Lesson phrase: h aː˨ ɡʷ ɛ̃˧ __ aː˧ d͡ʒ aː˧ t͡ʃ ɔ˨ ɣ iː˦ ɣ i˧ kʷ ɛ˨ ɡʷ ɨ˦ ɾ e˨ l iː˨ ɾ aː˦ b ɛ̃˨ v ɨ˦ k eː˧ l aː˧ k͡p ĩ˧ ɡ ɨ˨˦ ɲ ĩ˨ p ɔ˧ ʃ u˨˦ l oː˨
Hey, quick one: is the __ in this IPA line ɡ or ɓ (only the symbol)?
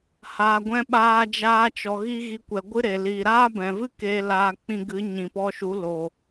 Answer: ɓ